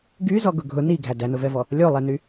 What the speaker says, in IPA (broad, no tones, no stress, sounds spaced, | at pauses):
ɡ y z ɔ ɡ ʊ ɡʱ ʊ n i ɡʱ æ d æ n ʊ v ɛ v ɔ | lʲ o lˠ ɛ n y